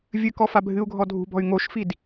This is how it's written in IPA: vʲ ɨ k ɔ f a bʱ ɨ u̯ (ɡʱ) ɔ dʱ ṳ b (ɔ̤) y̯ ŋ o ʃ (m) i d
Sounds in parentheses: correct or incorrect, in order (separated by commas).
correct, correct, incorrect